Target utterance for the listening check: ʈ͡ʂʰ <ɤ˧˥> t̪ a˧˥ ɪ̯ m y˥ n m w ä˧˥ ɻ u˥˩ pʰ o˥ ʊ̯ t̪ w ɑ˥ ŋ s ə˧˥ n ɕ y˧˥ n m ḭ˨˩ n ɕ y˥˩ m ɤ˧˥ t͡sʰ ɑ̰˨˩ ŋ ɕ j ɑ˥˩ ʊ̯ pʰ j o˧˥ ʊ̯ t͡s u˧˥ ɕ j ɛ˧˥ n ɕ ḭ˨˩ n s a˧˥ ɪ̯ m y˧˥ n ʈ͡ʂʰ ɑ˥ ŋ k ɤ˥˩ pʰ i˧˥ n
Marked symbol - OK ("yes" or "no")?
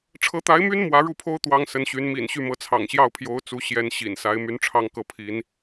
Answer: yes